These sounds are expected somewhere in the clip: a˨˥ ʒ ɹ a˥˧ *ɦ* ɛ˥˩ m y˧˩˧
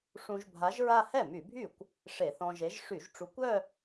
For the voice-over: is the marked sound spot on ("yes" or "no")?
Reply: no